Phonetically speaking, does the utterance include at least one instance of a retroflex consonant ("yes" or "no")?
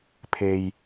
no